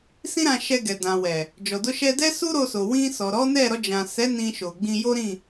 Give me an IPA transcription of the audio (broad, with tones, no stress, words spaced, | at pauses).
sĩ˦ɾã˧ ʃɛ˧ɡɛ˨ dã˨wɛ˨ | d͡ʒɔ˨do˧ʃɛ˧ dɛ˦su˦ ɾo˧so˨ wĩ˧sɔ˨ ɾɔ˨˦nɛ˦˨ ɾɔ˧d͡ʒã˨sɛ˨˦ nĩ˧ʃo˨ɡ͡bĩ˧ jo˦ɾĩ˦˨